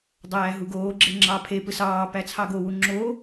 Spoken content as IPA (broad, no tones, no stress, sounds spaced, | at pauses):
dˤ æː ɦ u ɡ oː ɡ͡ǁ e ŋ͡ǁ ɑ pʰ e p ɯ s ɑː p æ t͡sʰ ɑ ɡ o w u ŋ͡ǁ oː